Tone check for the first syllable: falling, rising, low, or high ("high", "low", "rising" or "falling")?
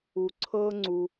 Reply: low